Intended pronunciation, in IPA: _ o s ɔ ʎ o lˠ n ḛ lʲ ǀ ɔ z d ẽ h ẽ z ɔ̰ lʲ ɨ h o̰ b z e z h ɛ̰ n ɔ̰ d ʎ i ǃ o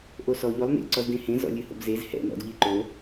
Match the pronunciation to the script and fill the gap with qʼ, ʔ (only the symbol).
ʔ